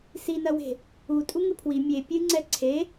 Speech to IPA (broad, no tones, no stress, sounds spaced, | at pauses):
s i n ɐ w e̤ | u tʼ u ŋ ɨ pʰ w i mʲ e pʲ ɨ ŋ͡ǀ ɛ ǀʰ e